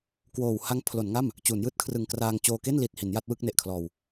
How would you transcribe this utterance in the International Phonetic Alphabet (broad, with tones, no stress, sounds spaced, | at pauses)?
k w oː˨˩ w h a˦˥ ŋ pʰ l o˩˦ n ŋ a˥˩ m | t͡ɕ uː˩˦ n j ɯː˥˩ t̚ kʰ r ɯ˨˩ ŋ k r aː˧ ŋ t͡ɕ oː˧ k e˥˩ n l i˨˩ t̚ h i˩˦ n j a˦˥ t̚ w ɯ˥˩ k̚ n e˨˩ ʔ kʰ l ɔː˧ w